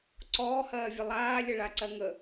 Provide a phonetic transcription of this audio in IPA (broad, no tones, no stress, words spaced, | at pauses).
ǀɔːhɜːvʲə lˠaːlʲəɭaǀɜ ŋə